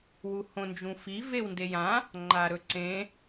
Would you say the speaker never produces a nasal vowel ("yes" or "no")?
no